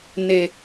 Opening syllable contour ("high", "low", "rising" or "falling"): low